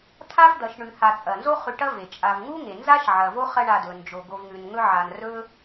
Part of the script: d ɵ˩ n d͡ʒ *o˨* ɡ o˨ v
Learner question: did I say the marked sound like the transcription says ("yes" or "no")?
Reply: no